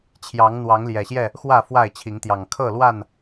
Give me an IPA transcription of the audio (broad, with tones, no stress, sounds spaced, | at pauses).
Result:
t͡ɕʰ j ɑ˨˦ ŋ n̪ w ɑ˨˦ ŋ l j ɛ˨˩ ɕ j ɛ˥˨ | x w ä˥˨ f w a˥˨ ɪ̯ t͡ɕʰ i˨˦ ŋ t̪ j ɑ˨˩ ŋ kʰ ɤ˥˨ l w a˥˨ n